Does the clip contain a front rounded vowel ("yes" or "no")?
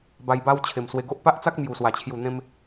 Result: no